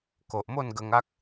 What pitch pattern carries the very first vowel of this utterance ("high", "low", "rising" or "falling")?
low